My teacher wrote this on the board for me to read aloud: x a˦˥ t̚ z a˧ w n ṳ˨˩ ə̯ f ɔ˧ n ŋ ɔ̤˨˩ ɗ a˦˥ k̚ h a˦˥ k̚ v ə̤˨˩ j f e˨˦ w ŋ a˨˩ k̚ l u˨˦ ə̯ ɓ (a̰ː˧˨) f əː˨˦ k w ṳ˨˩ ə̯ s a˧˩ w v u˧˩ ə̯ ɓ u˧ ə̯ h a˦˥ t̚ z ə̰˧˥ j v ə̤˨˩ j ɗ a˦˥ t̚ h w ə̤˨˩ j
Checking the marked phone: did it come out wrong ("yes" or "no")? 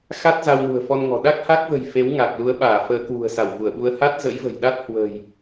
yes